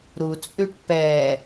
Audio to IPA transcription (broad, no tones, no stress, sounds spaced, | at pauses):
ɾ u t͡sʼ ʉ ʈ p ɛ